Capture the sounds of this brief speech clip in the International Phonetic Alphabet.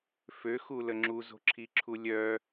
f ø x u l ə ŋ͡ǁ u z o̤ ǁʰ i ǁʰ u lʲ œ

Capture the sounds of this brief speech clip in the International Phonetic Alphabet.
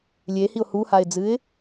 lʲ e h i ʊ̯ h u h a ɪ̯ d͡z ɨ ɪ̯

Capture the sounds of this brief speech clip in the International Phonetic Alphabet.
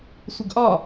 sʷ ə ɡ ʔ ɒ

